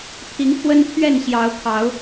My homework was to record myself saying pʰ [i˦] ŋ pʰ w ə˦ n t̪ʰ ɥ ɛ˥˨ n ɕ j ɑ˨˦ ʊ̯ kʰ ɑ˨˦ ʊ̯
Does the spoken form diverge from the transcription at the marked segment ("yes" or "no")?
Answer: yes